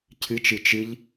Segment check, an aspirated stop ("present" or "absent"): present